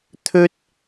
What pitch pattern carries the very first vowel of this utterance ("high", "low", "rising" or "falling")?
high